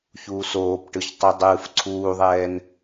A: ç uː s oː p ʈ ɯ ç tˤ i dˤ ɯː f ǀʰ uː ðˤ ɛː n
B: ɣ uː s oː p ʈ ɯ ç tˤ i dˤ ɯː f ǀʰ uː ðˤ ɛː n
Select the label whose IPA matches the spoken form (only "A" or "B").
A